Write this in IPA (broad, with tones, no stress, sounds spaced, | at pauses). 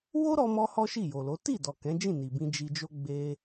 w o˦ ɾ ɔ˧ m ɔ˧ h ɔ˦ ʃ i˦˨ j o˨ l o˨˦ t i˦˨ d ɔ˨ k ɛ̃˨˦ d͡ʒ ĩ˦˨ n i˨ b ĩ˧ d͡ʒ i˧ d͡ʒ o˦ ɡ͡b e˧